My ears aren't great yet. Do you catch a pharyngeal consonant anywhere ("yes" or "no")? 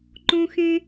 no